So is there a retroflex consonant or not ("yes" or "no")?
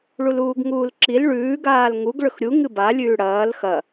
yes